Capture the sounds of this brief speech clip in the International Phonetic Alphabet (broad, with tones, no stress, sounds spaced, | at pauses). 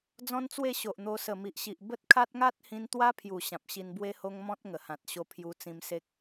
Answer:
d͡z ɔ̃˦ n t͡s w e˥˧ ɕ o˨ ʔ n̪ o˧ s ə˨˩ m i˨ ʔ ɕ i˨ ʔ b ə˦ t̚ kʰ a˦ t̚ ŋ a˦ t̚ h ĩ˧ n t̪ w a˦ pʰ j u˨˩ ɕ ã˨ p̚ ɕ i˧ n b w e˦ h o˦ ŋ m ɔ̃˦ t̚ ŋ ə˨˩ h ã˨ t̚ ɕ o˧ pʰ j u˧ t͡s ĩ˧ m s e˦ k̚